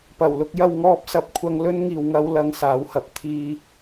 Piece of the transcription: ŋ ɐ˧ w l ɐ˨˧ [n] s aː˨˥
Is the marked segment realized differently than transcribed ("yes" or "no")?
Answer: yes